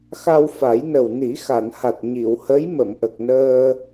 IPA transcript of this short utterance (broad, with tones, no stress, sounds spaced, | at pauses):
x a˧ w f a˨˩˦ j n ə˨˩ w n i˨˩˦ x a˨˩˨ n h a˨˩ t̚ ɲ i˨˩˨ w h ə˧˥ j m ə˨˩˨ m ʔ ə˨˩ k̚ n əː˧